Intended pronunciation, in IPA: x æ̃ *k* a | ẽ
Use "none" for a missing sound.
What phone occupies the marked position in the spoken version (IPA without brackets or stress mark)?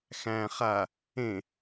χ